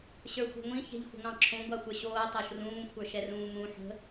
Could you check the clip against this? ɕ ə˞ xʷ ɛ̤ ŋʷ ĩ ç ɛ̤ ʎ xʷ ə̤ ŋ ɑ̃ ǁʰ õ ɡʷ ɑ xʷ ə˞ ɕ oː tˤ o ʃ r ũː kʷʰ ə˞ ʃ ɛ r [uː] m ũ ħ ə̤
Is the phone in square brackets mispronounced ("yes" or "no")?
yes